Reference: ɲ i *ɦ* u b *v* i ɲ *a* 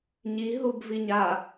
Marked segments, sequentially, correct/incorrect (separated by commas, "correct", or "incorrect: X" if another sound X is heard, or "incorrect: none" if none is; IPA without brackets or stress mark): correct, correct, correct